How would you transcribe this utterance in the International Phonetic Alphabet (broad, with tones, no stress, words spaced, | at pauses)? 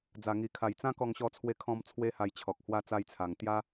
d͡za˧ŋi˧kʰa˧j t͡sã˦kɔ˧ŋɕɔ˧t͡sʰwe˧ kʰɔ̃˧m t͡sʰwe˦ha˧jt͡ɕʰɔ˨k̚ hwa˧t͡sa˧jt͡sʰa˨˩ŋ t̪ja˦